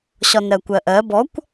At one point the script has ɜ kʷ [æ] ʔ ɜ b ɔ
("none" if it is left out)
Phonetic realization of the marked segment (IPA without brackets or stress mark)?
ɜ